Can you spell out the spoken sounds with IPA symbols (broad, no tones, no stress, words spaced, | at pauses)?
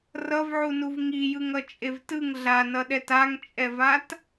rʌvʕunuv ŋijɯŋʌ t͡ʃʼevtɯŋ ɮanʌɗɛt aŋt͡ʃʼɛvat